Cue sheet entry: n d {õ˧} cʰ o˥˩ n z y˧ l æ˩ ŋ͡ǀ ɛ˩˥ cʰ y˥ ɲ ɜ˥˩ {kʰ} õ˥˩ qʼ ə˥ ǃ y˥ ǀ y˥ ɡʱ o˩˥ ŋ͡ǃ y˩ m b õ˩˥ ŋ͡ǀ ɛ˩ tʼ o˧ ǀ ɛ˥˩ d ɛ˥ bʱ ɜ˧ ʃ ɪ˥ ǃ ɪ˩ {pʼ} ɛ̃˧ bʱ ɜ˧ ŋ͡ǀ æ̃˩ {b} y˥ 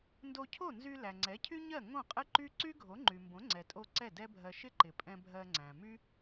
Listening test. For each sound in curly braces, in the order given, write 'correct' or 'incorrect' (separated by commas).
incorrect, incorrect, correct, incorrect